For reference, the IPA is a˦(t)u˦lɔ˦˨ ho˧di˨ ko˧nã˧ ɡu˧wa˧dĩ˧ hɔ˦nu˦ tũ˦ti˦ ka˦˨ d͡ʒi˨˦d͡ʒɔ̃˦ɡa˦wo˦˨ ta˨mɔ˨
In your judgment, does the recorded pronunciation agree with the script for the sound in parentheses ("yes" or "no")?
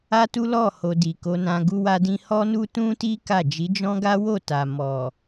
yes